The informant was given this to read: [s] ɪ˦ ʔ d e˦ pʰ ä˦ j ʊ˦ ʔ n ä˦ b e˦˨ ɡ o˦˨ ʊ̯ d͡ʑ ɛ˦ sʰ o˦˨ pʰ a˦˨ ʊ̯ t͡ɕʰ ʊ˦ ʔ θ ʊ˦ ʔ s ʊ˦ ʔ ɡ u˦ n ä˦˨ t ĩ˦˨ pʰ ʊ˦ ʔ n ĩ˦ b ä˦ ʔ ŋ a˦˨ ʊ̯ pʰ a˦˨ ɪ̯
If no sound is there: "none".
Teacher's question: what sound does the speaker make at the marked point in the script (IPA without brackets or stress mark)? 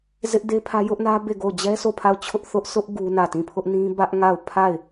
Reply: z